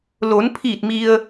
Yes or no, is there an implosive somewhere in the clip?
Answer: no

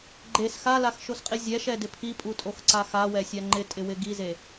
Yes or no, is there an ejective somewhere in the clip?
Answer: yes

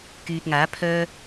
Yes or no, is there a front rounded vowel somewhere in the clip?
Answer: yes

